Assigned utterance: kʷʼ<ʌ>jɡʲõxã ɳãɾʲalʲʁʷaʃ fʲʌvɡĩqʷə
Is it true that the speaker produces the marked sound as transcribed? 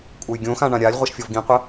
no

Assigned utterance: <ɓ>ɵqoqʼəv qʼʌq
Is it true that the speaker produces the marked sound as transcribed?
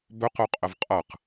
no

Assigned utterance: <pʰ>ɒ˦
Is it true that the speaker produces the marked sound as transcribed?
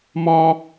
no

